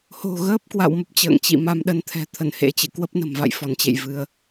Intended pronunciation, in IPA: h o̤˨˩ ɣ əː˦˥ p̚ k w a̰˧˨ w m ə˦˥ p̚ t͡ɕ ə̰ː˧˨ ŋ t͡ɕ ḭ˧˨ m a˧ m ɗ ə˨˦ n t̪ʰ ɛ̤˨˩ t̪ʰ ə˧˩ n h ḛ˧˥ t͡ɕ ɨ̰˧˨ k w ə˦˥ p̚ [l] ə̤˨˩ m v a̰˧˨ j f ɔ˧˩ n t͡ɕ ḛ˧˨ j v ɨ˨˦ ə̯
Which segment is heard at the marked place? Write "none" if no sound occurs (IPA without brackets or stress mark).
n